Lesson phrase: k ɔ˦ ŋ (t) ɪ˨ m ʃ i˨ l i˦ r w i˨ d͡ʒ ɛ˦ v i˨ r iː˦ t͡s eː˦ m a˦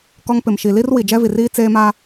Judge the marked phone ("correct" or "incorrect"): incorrect